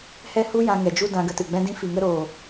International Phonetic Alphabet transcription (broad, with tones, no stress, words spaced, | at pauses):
hɛ˦hu˦jã˧ ŋɛ˨d͡ʒu˧ dã˧ɡə˧tɨ˨ɡ͡bɛ̃˦ dĩ˧fi˨ŋə˧ɾoː˨